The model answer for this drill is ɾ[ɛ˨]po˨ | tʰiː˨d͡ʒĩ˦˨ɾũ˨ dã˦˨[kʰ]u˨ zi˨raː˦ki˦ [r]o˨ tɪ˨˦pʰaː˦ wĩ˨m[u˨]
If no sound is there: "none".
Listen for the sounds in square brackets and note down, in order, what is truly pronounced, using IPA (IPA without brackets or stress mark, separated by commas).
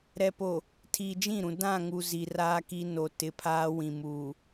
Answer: ɛ˨, ŋ, n, uː˨